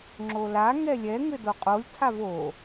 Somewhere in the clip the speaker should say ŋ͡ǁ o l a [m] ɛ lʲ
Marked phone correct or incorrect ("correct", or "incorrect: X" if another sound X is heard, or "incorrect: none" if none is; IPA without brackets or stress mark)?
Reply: incorrect: ŋ